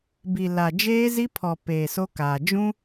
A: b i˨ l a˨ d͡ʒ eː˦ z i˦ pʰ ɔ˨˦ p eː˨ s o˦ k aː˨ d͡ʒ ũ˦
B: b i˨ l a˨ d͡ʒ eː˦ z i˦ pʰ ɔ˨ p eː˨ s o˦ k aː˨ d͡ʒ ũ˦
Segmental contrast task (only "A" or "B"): B